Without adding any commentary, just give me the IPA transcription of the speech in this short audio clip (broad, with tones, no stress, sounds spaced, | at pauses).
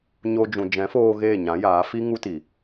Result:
ɲ o˧ d͡ʒ ũ˨ d͡ʒ ɛ̃˨˦ f oː˧ ɣ eː˦˨ ɲ ã˨˦ j aː˨˦ f i˦ ŋ u˦ t i˨